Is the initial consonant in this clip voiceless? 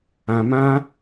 no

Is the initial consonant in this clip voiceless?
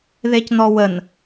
no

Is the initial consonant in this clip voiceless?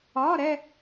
no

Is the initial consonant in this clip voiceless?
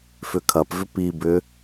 yes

